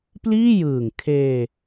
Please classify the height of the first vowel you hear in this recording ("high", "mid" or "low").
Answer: high